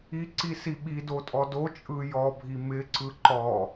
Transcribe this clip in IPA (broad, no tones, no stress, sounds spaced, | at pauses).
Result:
i ǀ i s i ɓ i d o tʼ ɔ d o t͡ʃʼ ɯ j ɔ bʱ i m ɪ ǀ ɯ ǃ ɔ